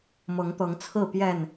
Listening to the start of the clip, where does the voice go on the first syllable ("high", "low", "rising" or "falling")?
rising